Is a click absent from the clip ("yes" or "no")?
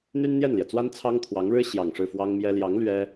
yes